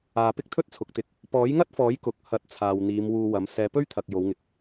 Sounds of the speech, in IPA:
aː˨ pɪ˥k̚t̪ʰɵ˥t̚t͡sʰʊ˨k̚t̪ɪ˨˥k̚ | pɔː˨˥jŋɐ˥t̚fɔː˨˥j kʊ˨k̚ hɐ˨˥t̚t͡sʰaː˨w n̪iː˨˧mwuː˧wɐ˨˥m sɛː˨˧pɵ˥ɥt̪ʰɐ˨k̚ jo˨˧wŋɪ˨k̚

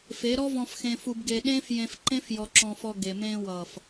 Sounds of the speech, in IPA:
fe˨˦ ɾɔ˦vɔ̃˧fxẽ˧ fu˧bɡe˧ ɗẽː˦fjẽ˧fǃẽ˦f jɔ˧ǁɔ̃˧fɔ˧ ɡe˨mẽː˧ wʌː˨f

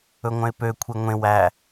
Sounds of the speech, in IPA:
ɵŋʷœ̃ɪ̯pø kʷʰeŋʷẽ wæ

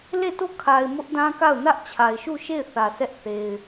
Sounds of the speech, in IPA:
le˦˨to˦˨kʰa˨ɪ̯ mʊ˦ʔdã˦ka˦˨ʊ̯ nä˦ʔ t͡ɕʰa˨ɪ̯ʃu˦˨ʃe˦˨ɪ̯θä˨ sɛ˦ʔ θe˨ɪ̯

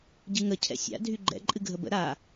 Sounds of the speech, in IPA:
ɟɨŋə cʰɛ̰sʲa̰ dʱyɡ͡ǃɛ̰ ǃʼɨɡʱəbə̰ ɾa

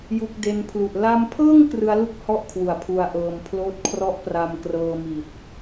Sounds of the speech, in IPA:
ju˦˥k̚de˦˥n pʰlu˨˩ʔ la˧mpʰɤː˥˩ŋ krɯ˦˥a̯lu˥˩k̚hɔ˥˩ʔ kʰwu˨˩a̯pʰu˧a̯ʔɤː˧m pʰloː˦˥t̚kʰrɔ˥˩ʔpra˧m krɤː˧mi˨˩t̚

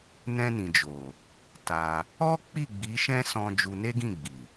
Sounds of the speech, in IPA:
nɛ̃˧nĩ˨d͡ʒo˨ | ta˧ | ɔ˦k͡pi˦˨ ɡ͡bi˨˦ʃɛ̃˦sɔ̃˧ d͡ʒu˧ne˦ɡĩ˦˨ɡ͡bi˨

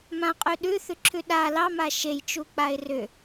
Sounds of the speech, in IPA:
mãqʼʉ ɗʉθʉǁʰʉ ɗa lɑma ʃejt͡ʃuk͡paɪ̯ rʏ

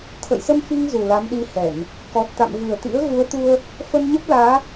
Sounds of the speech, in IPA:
t̪ʰə̰˧˨jsə˧m fi˧ŋ zu˨˩la˨˦mɗi˧hɛ˧˩˨n | kɔ˨˩t̚t̪a̰˧˨m vɨ˨˩ə̯t̪ḭ˧˥ə̯ ɣu˨˦ə̯t̪u˧ə̯ | fə˧nɲə˦˥p̚laː˨˦

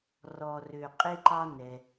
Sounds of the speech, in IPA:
rɔ˩rø˩ qʼe˧ǃɑ˧ nɛ˩

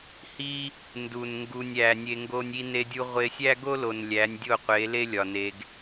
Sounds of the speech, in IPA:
hi˦ | ndu˨n ŋɡu˨nʲæ˨ nʲe˧ŋɡo˦nʲi˦ ne˧dʲu˧ ʁʷe˧sʲæ˦ɡo˦lo˨n lʲæ˨˦nʲ dʲo˦˨qʷe˨˦le˦ lʲɒ˨ne˧ɡ

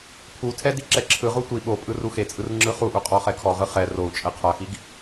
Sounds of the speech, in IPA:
pʰutʰɛ diǁɛǁʰɯʁu tʷi ɓo pʼɯruxet͡sʼɯr ŋ͡ǁɯχuʔu qʼɔχɛkʰɔʁɯ χɛ rou̯t͡ʃʼɛ qʰaxiɡ

